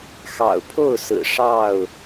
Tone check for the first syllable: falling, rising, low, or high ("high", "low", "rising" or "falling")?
low